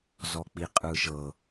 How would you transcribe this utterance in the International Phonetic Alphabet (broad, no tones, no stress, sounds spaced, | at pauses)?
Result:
z ɔ k͡p i qʼ ɯ ʃ ɤ